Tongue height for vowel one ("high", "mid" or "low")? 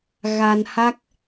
low